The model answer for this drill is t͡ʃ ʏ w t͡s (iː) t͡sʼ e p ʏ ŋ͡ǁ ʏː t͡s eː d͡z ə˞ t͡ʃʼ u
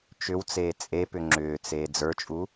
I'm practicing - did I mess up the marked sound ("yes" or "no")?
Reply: yes